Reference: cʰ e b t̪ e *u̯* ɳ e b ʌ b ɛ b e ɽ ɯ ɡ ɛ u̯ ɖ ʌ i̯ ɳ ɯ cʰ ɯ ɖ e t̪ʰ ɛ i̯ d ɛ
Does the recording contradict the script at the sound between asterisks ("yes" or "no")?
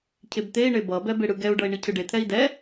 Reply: yes